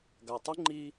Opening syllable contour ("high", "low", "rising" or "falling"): low